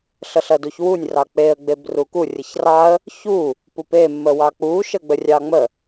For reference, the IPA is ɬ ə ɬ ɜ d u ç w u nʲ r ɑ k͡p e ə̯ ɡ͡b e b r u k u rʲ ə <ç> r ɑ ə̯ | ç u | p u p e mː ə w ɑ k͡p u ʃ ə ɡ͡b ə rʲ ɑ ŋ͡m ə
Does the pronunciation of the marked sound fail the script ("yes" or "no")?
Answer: no